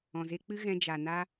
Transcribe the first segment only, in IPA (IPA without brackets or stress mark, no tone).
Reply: ɔ̃